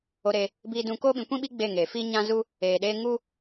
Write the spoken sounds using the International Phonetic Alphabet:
o˧ ɾe˧ | biː˦dũ˦ koː˦ɓĩ˨˦kʷĩ˦ɓi˦ ɡ͡be˦˨ŋeː˨ fi˦ɲã˦zu˦ | eː˨ɗeː˧ŋu˦

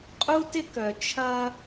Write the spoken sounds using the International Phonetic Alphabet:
qʼu˦tɪ˦kœ˨ t͡ʃʰɐ˦

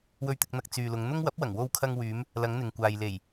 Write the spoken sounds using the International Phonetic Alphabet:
wɵ˨ɥt̪ɪ˨k̚n̪ɐ˨k̚ t͡syː˨lʊ˨˧ŋn̪ʊ˥ŋ wɐ˨˥p̚wɐ˨˩ŋ wo˧wkʰɐ˧ŋwyː˨˧m | lɐ˨˧ŋn̪ɪ˨ŋkʷaː˨j le˨˩j

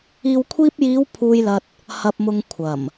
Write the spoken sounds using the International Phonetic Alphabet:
iː˨wkʷʰiː˧p̚jiː˨˧w pʰuː˧jlɐ˧t̚ | hɐ˨p̚mʊ˨ŋ kʷʰɐ˨˩m

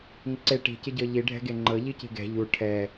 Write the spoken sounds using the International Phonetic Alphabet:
ŋɪǀe ʈi̤cɪ ɟɤʎi ɖʱɛ̤ɡeŋ͡ǃɤ ʎici̤ɡɛ̤ ʎu ʈʰɛ

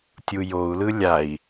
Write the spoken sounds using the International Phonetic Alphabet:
tʲujou̯lɯ lʲai̯

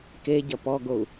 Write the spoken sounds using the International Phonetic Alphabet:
ke ɟɐpɔɡou̯

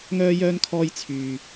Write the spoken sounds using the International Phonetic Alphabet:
ŋœː˥jœː˥nkʰɔː˥j t͡sʰyː˧

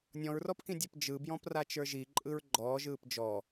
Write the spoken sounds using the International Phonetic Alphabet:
nʲɔ̃ɹrɔpkĩdʲɛp d͡ʒɯbjɔ̃prat͡ʃə˞ ʒiǃʼɯɹ ɡ͡ǃɔːʒɯːp d͡ʒɔ

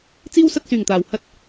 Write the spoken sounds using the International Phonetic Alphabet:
t͡siː˥wsɐ˧t̚syː˨˩ŋt̪aː˨˩w hɐ˥t̚

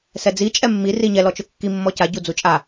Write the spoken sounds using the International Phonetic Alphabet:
sɛd͡zi t͡ʃʼɛmːi riɲɛ lɔt͡ʃʊkːi mːɔca ɟud͡zut͡ʃʼa

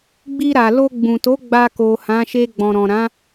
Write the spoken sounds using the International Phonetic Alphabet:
ɡ͡bi˧ɾa˨lo˧ ɡ͡bũ˨to˨˦ ɡ͡ba˧ko˨hã˨˦ʃe˧ ɡ͡bɔ̃˨ɾɔ̃˨ɾã˨˦

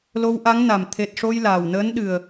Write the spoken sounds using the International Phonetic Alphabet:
lo˧wʔa˧˥ŋna˨˩m t̪ʰe˨˩t̚ʂo˧j laː˨˩wnəː˧˥n ɗɨ˨˩ə̯

